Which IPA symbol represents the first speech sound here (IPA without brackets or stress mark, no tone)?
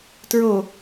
t